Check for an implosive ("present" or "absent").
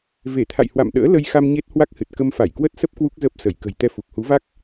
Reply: present